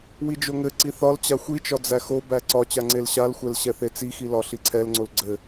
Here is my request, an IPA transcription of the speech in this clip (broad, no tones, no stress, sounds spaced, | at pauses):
w i d͡ʒ o ŋ ɘ ǀ i θ ɒ l t͡ɕ a xʷ i t͡ʃ ɒ d͡z æ x o b æ ǀ ɒ t͡ɕ a ŋ͡ǀ e l ɕ a l xʷ ɛ l ɕ ɛ θ e t͡s i x i l ɒ ɬ i ǀʰ ɛ l ŋ͡ǀ o l ɡ͡ǀ ɘ